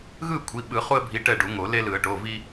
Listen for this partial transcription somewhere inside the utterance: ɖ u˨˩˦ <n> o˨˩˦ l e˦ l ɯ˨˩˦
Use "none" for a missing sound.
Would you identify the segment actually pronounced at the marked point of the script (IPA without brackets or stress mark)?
ŋ